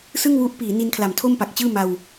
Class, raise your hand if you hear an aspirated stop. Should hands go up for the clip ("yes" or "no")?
yes